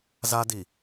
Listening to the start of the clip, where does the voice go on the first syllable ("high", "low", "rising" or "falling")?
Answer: high